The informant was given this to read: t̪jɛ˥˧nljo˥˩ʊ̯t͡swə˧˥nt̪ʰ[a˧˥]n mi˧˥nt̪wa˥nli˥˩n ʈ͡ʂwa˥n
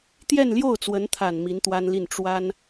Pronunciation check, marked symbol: incorrect: a˨˩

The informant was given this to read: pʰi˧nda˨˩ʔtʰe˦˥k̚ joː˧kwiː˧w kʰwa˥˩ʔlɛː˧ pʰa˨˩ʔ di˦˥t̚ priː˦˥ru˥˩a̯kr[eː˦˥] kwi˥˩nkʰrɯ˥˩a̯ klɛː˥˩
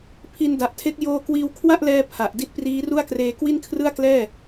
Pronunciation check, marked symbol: incorrect: eː˧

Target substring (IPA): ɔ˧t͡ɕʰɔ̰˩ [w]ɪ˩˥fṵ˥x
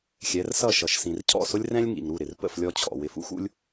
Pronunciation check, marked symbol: correct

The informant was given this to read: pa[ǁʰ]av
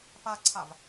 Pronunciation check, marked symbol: incorrect: ǀʰ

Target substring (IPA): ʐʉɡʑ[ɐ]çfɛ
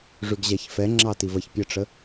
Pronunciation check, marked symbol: incorrect: a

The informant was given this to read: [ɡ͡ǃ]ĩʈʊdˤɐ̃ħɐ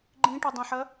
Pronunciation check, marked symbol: correct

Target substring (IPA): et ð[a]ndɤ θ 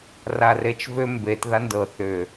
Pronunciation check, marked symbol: correct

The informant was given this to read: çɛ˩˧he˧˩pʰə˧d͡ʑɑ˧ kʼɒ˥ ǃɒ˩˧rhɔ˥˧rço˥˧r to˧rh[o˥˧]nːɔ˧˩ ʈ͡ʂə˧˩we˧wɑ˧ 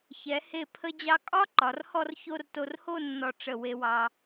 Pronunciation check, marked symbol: correct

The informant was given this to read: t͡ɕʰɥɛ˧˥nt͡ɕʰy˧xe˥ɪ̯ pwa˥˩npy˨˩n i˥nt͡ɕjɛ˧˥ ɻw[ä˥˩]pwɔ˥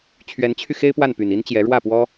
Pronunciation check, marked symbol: correct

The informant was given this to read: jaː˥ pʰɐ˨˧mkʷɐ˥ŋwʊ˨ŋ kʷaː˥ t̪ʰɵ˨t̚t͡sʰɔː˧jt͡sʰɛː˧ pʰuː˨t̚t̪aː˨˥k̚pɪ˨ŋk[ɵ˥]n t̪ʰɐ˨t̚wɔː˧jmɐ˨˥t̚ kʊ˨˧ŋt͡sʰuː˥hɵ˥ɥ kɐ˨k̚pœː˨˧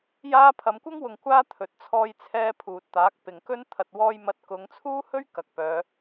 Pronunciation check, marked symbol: correct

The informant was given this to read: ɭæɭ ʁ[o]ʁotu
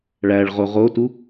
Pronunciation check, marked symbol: correct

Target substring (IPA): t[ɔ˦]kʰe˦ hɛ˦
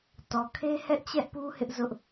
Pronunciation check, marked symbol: incorrect: ɔ˨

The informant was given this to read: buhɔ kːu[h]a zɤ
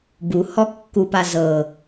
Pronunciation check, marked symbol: incorrect: p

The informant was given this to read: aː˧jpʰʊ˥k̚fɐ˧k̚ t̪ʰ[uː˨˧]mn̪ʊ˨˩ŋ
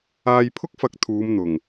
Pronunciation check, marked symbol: correct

